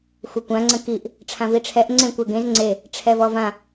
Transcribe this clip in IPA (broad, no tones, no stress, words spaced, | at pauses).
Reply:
xʷəkʷã ŋ͡ǀə̃kiʔ | ʈ͡ʂʰãviʈ͡ʂʰɛʔ ŋ͡ǀẽkʷɛɡẽz ŋ͡ǀe | ʈ͡ʂʰɛvɔvã